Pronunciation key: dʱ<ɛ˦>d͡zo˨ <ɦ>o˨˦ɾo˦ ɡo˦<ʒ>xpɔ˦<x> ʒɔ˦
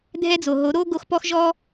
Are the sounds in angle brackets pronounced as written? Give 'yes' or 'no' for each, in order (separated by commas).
yes, yes, no, yes